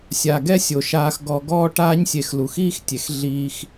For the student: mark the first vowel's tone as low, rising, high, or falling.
low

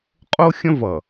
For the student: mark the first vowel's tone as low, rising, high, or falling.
high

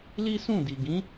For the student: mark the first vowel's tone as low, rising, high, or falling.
high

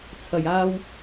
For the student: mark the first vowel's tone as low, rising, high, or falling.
low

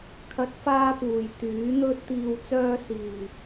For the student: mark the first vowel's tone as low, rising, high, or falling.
rising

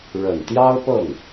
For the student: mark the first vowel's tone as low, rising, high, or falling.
low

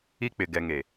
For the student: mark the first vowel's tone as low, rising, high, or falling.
high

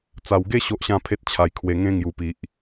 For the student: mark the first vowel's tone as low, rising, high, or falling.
low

